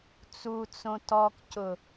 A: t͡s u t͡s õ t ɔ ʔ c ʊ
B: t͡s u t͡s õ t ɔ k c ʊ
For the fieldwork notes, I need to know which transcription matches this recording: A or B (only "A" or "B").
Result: B